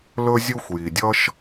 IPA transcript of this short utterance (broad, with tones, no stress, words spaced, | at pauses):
lɵ˦zʲu˦xʷji˩dʲʌ˦ʃ